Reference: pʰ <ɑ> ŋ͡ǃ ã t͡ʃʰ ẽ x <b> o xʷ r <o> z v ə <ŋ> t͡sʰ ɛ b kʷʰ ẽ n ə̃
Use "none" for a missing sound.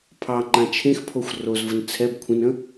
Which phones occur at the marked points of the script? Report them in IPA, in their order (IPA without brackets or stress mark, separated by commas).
ɑ, pʰ, o, n